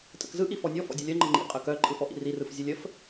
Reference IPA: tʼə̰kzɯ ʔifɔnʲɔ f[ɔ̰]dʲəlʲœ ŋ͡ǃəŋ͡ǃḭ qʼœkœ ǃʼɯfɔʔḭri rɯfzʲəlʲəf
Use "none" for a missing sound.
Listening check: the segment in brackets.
ɔ̰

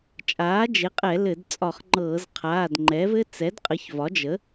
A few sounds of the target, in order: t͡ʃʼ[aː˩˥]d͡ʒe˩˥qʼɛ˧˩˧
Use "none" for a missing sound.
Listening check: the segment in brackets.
aː˩˥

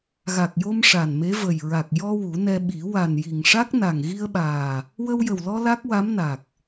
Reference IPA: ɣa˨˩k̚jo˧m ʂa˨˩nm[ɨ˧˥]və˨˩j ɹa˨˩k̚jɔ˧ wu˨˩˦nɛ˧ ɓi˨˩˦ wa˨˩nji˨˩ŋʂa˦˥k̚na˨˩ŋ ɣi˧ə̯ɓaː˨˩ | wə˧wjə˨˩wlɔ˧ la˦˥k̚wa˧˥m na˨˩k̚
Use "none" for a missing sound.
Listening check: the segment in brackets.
e˧˥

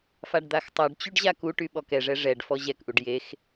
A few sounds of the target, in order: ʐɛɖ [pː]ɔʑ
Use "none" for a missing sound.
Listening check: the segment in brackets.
f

